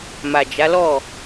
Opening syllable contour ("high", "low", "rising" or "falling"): low